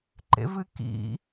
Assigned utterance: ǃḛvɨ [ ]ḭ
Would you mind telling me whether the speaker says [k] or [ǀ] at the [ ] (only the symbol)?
k